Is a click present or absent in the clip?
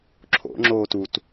present